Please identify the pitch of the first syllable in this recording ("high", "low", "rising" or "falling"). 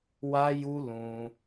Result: high